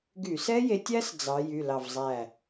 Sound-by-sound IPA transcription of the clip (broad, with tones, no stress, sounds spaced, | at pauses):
ɡ y˧˩˧ s ɛ˦˥ j e˨˦ tʲ æ˦˥ s d͡z ɑ˨˦ j y˩˧˩ l ɑ˧˩ v zˤ æ˧˩